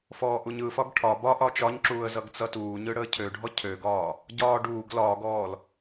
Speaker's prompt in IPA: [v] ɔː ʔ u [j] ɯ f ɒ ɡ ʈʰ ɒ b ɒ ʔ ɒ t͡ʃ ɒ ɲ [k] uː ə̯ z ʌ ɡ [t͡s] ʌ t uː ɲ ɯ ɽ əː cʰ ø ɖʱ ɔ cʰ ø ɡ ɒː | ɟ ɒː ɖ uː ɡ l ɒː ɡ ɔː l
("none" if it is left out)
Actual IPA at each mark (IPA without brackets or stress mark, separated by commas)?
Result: f, ɲ, ǁ, t͡s